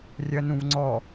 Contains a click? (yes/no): yes